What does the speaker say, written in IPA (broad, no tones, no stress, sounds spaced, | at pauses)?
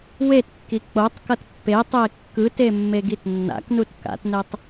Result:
w e t kː i k͡p o tˤ k ʌ t pː e tˤ e kː ɯ t e mː e ɡ i t nː a̰ k n u t k a̰ t n ɛ tˤ